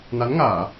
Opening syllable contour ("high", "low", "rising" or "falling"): rising